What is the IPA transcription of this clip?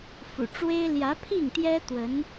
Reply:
f ṵ˨˩ ʈ͡ʂ w e˥ ɪ̯ l j ä˧˥ pʰ i˥˩ ŋ t̪ j ɛ˥ t̪ w ə˧˥ n

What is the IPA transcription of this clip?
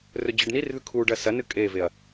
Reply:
r ɵ d͡ʑ ɨ ɖ n i r ð ʉ kʰ u ɖ ɐ s ɐ n ɨ kʼ e v e ɐ̯

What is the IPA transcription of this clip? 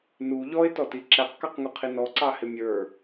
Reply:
n u ʎ ɔ ɪ̯ t ɔ t i ǁ æ q k ɑ q ŋ u qʰ i n ɔ ǀ ɑ h ɪ mʲ ə˞

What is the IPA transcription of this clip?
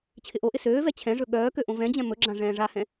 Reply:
t͡ɕʰ ɪ ʔ o ʔ ɪ s øː v ɛ t͡ɕʰ ɛ̃ ʐ ɵ ɠ œː k ø ʔ õ v ɛ̃ d͡ʑ ɛ̃ m ɵ ɡ͡ǁ ã ʐ ɛ̃ː ʐ a h ɛ̃

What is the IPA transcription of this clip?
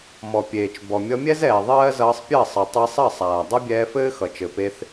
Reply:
m ɔ˨ pʲ eː˨ t͡ʃ b ɔ˨ mʲ ʌ˧ mʲ ɛ˦ z ɛː˨ ðˤ ɜː˦ z ʌː˧ sˤ pʲ ɜ˦˨ sˤ ʌ˨ tˤ e˧ sˤ ɜ˦˨ sˤ aː˨ dˤ ʌ˦ bʲ ɛː˧ f ɘː˦ x ʌ˨ t͡ʃ ɘ˨ p e˧ θ

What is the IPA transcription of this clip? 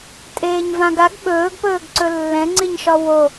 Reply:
tʼ eː ɲ v ã ɡ a ɡ ɓ ɵː ɡ p ɵː ɡ ǀ ɵ lː ɛ̃ ŋ͡ǀ i ɲ ʃ ɒ w o

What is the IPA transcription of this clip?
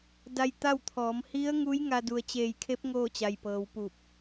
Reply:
d a˧ j t̪ a˥˨ w t̪ʰ ɔː˩˧ m h i˧˥ ə̯ ŋ u˧˥ j ŋ a˧ d u˩ ə̯ t͡ɕ eː˧˩ j kʰ e˧˥ p̚ ŋ oː˥˨ t͡ɕ a˩ j p ɤː˩˧ w p u˧˩ p̚

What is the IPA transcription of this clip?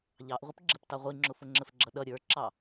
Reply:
ʎ ɑ ʔ ʁʷ ɪ p ɡ͡ǁ ə p t ɑ ʁʷ i ŋ͡ǁ ʊ f ʊ ŋ͡ǁ ə f ɡ͡ǁ ʌ ɗ ʌ ɾʲ ə˞ ǁ ɑ

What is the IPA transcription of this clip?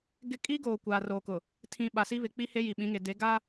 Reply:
ɡ ɪ˦ kʼ i˦ ɡ oː˨ kʷ aː˨ r oː˨ k ʊ˨ | tʰ ĩ˨ ɓ a˨ s i˦ β ɪ˨ k͡p i˦ h e˦ j i˨ ɓ ĩ˨˦ ŋ e˨ d e˨˦ ɡ a˦

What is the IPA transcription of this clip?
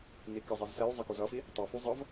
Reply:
n i k ʌ zˤ i z s ɛ j zˤ ʌ k u z ʌ f i | tˤ u f u zˤ ʌ v

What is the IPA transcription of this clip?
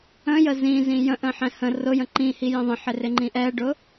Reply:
ə̃ j ə z ĩ z ĩ j ə̃ ʔ ə̃ ħ ɛ̃ h ə̃ r ʊ j ə̃ ǃ ĩ h i j ə̃ ðˤ ə̃ ħ ɪ r ɪ ŋ͡ǃ ĩ ʔ ɛ ɖ ʊ

